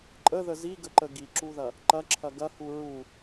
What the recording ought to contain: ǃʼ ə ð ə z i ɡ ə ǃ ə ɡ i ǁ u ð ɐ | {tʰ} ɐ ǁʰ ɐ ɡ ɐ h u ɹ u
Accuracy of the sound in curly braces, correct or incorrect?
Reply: incorrect